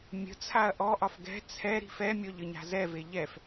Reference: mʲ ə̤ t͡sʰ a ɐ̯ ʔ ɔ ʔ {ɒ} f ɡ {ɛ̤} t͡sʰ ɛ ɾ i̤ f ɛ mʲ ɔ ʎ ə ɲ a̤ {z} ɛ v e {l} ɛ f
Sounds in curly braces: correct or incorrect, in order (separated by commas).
correct, correct, correct, incorrect